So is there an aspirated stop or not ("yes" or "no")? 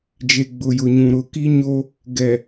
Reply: no